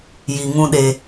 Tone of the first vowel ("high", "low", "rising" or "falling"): low